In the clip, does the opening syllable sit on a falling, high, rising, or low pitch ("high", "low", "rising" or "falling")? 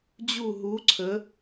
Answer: falling